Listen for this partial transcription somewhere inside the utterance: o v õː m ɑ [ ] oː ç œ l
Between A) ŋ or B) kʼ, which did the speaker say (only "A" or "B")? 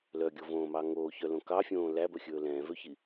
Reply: A